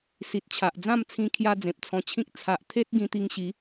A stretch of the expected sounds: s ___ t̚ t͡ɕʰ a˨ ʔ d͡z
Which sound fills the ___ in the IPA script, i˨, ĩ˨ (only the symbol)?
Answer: i˨